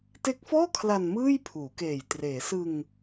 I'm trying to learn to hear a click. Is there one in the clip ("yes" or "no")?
no